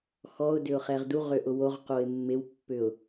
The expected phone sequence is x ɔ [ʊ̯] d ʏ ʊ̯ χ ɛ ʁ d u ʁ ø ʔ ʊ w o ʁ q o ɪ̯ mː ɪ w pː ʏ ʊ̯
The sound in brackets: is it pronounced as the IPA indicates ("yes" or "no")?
yes